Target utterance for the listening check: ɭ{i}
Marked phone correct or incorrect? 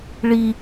correct